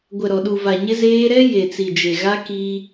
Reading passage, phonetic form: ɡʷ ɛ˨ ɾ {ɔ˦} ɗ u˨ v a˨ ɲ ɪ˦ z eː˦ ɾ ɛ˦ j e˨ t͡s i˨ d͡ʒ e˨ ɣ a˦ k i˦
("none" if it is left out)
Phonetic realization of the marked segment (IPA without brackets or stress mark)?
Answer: ɔ˨